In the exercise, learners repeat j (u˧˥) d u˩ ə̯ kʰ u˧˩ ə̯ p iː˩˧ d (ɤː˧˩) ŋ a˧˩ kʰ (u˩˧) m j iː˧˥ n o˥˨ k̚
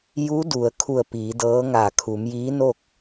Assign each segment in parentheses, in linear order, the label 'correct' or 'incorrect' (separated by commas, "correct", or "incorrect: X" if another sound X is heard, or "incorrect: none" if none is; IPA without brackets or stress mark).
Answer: correct, incorrect: ɤː˧˥, correct